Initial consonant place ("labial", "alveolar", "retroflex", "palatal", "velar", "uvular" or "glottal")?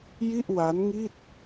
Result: palatal